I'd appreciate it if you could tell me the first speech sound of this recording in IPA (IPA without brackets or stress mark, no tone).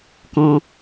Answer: k